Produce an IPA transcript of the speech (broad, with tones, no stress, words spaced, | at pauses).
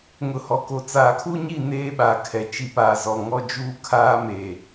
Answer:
ŋʊ˨hɔ˨ko˨ t͡saː˨kʰu˦ɲi˦˨ neː˦ɓaː˨kʰɛ˨ t͡ʃi˨paː˨ zɔ˨ŋɔ˦ d͡ʒuː˦kʰaː˦meː˨